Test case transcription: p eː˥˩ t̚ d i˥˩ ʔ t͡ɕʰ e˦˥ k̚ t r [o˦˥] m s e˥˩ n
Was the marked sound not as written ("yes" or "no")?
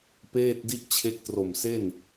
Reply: yes